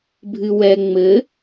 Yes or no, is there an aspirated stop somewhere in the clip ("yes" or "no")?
no